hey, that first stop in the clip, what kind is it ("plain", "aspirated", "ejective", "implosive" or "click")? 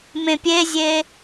plain